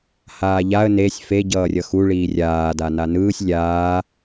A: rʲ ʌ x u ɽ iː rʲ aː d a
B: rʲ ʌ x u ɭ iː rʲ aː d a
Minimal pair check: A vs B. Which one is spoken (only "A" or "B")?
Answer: B